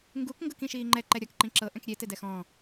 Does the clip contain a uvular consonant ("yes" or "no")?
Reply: no